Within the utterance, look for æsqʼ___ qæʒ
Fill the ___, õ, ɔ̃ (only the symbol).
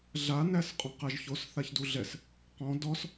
ɔ̃